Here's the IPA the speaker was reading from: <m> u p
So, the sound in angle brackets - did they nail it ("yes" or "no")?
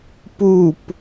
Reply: no